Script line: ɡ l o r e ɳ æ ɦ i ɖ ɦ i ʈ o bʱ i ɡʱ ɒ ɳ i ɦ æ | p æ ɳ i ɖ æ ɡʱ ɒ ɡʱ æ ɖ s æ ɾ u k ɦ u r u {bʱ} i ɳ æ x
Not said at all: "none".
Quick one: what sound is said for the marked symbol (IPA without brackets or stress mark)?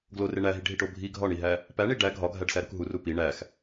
p